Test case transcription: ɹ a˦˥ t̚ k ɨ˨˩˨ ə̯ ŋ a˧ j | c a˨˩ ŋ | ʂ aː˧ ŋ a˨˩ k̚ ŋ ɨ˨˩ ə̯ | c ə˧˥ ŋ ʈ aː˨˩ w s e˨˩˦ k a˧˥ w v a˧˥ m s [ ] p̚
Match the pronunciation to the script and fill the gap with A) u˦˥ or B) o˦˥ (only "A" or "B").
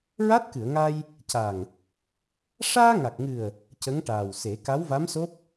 B